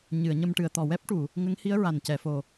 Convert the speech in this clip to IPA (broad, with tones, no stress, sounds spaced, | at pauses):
ɲ ɨ˨˩˨ ə̯ ɲ ə˧ m ʈ ɨ˨˩˨ ə̯ t̪ ɔ˨˩ w ɛ˦˥ p̚ ʈ u˨˩˨ | ŋ ə˧˥ ŋ h i˧˥ ə̯ ɹ a˨˩ n c ɛ˨˩˨ f o˨˩